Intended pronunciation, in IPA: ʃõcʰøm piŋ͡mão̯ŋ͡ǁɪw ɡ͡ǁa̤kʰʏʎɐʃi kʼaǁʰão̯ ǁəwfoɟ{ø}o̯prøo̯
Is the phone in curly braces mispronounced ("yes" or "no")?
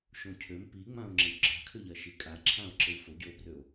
no